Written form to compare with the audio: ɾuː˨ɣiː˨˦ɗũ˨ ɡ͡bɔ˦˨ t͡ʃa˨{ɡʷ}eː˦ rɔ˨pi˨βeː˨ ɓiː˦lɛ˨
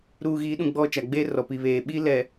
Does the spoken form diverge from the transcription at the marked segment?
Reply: yes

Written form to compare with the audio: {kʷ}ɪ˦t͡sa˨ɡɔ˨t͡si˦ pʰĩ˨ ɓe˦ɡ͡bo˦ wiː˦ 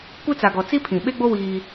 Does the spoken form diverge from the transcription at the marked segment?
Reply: no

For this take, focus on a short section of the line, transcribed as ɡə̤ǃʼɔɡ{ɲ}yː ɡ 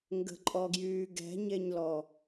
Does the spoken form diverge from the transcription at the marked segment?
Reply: yes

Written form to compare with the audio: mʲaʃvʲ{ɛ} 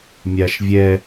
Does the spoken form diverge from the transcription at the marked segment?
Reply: no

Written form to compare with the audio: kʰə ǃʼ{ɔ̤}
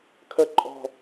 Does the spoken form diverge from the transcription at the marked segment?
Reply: no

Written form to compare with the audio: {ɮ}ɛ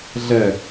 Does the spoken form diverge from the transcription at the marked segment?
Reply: no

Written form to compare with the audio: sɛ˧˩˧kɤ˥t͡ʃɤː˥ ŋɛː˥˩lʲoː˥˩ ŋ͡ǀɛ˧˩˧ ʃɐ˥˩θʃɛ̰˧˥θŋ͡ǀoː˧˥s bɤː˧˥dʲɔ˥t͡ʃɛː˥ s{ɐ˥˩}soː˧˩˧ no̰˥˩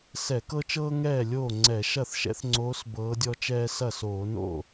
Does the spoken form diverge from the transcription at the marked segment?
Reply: no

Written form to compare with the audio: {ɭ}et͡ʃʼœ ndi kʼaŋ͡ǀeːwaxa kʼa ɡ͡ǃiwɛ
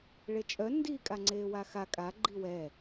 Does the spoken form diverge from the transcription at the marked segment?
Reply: no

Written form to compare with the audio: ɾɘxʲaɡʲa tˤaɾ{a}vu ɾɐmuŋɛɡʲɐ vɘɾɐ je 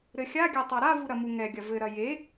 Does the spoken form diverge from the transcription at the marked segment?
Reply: no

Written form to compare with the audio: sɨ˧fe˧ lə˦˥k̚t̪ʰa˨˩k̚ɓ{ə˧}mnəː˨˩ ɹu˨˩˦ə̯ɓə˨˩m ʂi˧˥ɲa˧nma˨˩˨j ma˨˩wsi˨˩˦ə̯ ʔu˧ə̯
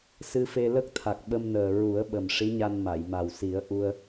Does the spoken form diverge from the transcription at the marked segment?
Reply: no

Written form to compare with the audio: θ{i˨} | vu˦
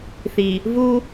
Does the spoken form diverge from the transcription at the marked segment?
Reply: no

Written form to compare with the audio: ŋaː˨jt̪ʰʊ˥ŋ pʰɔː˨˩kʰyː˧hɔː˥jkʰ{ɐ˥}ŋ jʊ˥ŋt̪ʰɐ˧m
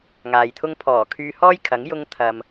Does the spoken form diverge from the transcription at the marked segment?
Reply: yes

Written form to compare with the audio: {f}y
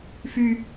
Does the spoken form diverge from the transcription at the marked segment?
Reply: no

